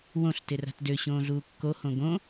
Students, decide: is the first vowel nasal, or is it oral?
nasal